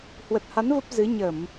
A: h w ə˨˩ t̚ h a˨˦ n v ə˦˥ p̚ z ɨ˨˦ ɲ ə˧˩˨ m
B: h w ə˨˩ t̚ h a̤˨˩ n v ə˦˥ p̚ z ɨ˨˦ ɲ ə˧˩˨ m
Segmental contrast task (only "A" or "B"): A